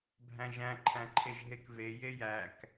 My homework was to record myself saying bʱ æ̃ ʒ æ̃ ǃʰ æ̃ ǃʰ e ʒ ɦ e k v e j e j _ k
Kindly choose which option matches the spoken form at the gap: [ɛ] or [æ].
æ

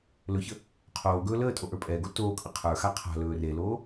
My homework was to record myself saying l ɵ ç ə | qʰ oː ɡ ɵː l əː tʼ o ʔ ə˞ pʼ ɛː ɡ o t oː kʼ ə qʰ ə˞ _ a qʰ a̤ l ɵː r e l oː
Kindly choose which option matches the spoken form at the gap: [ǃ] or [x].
x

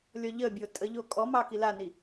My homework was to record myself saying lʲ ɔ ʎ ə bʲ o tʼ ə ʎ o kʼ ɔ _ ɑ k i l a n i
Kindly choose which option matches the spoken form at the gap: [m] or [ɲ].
m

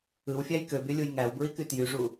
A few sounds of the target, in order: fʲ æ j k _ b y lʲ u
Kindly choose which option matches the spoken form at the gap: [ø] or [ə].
ø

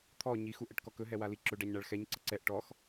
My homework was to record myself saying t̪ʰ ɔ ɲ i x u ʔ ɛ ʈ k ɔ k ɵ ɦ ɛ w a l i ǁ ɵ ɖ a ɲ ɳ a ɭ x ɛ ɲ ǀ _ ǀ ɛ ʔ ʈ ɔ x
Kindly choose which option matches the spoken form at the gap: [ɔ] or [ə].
ə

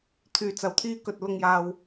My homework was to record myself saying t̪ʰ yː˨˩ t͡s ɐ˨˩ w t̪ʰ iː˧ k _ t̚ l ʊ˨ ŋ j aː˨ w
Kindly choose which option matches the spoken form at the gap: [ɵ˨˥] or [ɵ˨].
ɵ˨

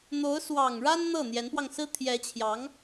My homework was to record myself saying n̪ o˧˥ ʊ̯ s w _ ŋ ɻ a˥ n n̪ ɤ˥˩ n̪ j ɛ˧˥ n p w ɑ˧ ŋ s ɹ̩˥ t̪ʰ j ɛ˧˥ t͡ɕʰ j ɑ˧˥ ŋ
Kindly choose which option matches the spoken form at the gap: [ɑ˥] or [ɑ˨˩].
ɑ˨˩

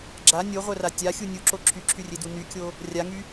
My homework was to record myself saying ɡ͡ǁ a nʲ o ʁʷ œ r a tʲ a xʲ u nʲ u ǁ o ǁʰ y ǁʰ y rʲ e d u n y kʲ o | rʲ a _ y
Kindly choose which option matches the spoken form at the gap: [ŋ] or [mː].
ŋ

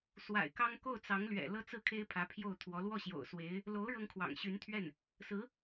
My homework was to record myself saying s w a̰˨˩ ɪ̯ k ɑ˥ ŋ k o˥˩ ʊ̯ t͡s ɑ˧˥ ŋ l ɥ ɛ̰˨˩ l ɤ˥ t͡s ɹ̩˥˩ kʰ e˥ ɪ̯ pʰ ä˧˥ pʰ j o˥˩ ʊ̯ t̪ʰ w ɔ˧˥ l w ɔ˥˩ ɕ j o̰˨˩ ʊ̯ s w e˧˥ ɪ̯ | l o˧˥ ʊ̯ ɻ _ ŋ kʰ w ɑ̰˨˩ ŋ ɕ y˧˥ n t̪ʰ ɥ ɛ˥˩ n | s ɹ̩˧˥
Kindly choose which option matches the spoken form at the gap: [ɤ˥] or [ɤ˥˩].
ɤ˥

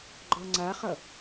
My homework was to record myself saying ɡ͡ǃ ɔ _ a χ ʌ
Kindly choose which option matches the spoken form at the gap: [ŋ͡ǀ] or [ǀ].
ŋ͡ǀ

